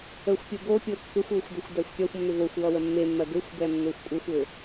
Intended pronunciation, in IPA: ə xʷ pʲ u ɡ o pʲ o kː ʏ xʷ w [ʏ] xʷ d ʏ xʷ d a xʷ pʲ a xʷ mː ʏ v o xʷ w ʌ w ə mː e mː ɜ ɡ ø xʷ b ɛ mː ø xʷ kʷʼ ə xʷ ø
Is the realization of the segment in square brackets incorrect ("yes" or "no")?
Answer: no